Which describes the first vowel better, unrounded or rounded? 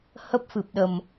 unrounded